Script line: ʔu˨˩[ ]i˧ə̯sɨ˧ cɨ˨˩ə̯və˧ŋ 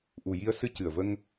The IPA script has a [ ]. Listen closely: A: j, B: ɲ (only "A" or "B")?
A